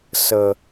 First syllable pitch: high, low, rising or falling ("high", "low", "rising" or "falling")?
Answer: low